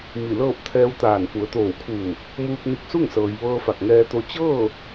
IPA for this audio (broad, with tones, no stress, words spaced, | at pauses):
mi˧˩lɤː˥˨p̚ t̪ʰɛː˧wt̪aː˧˩n fu˩˧ə̯t̪oː˧˩wkʰuː˧˩ | muː˧k̚ni˧k̚su˥˨ŋsɤː˩j ʋɤː˧fa˧˩k̚ŋɛː˧t̪o˧ t͡ɕɤː˥˨